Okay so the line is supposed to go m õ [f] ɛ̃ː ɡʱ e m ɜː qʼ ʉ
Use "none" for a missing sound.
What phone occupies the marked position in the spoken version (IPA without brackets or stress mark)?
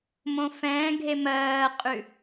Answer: f